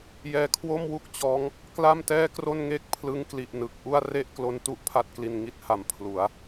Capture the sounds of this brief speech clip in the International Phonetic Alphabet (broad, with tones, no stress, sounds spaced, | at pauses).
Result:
j ɛː˧ kʰ w o˥˩ m w u˥˩ k̚ t͡ɕ ɔː˦˥ ŋ | k l a˥˩ m t ɛː˥˩ k r o˥˩ n ŋ e˥˩ k̚ pʰ l ɯ˦˥ ŋ k l i˨˩ ʔ n ɯ˨˩ k̚ ʔ u˥˩ a̯ r e˥˩ ʔ k l o˦˥ n t u˦˥ ʔ pʰ a˥˩ t̚ k l i˧ n ŋ i˦˥ t̚ h a˨˩ m pʰ l u˩˦ a̯